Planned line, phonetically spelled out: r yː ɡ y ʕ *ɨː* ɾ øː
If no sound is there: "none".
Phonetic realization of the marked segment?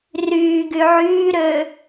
yː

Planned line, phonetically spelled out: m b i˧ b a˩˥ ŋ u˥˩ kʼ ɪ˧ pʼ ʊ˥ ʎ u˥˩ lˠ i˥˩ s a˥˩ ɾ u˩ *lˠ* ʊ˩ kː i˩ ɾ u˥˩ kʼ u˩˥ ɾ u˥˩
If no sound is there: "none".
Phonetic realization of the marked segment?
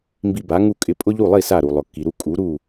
lˠ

